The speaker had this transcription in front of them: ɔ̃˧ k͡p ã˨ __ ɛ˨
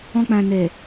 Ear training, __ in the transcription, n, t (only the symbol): n